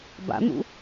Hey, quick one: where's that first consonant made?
lips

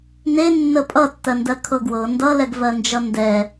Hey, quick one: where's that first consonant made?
tongue tip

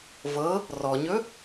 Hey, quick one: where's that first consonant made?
lips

